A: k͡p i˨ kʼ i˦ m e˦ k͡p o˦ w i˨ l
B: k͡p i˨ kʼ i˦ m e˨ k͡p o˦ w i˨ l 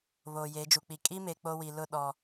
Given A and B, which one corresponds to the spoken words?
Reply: B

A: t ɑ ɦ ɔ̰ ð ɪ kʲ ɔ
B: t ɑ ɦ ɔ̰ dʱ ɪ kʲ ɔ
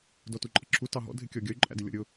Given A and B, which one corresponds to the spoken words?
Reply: B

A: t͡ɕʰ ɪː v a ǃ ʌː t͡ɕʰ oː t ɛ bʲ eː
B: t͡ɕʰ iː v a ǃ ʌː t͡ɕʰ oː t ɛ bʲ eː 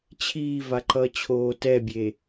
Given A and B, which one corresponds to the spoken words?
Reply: B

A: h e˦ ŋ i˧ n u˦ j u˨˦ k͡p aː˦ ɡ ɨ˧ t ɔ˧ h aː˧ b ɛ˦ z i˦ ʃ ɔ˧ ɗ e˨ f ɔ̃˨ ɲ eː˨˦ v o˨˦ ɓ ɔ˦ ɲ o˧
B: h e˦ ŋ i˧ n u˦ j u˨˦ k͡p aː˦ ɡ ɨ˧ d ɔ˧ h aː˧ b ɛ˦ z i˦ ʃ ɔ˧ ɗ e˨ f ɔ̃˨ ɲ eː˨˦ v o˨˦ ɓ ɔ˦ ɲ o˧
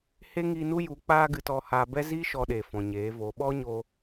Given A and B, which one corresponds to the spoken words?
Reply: A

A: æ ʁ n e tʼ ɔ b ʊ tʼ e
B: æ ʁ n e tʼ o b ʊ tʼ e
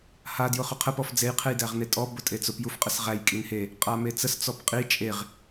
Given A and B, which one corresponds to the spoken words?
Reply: A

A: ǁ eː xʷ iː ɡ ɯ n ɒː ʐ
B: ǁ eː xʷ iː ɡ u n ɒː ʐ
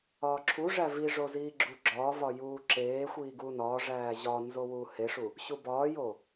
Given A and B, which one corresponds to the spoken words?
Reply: B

